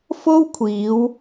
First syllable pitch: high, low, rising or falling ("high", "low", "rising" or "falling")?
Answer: high